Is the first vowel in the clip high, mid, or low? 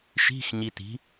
high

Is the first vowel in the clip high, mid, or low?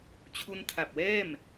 high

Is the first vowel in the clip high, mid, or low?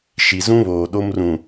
high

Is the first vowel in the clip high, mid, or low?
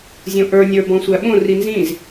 mid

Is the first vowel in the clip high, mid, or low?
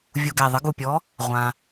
high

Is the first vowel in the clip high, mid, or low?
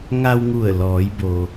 low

